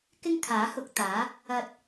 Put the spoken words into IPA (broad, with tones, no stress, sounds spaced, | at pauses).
k ɪ˥ ŋ kʰ aː˨˥ h ʊ˧ k̚ t̪ aː˨˥ | ɐ˧ t̚